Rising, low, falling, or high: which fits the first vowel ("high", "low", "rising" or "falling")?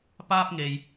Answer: high